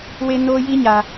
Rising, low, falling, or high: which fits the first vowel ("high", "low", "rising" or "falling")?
high